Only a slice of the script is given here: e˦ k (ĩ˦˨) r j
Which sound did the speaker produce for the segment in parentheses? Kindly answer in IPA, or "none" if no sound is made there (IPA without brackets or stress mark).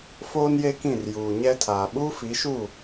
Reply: ĩ˦˨